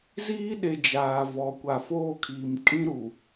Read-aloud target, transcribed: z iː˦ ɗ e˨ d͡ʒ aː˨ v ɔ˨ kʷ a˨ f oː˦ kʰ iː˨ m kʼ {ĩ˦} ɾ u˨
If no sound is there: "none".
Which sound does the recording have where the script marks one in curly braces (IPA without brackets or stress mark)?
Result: ĩ˦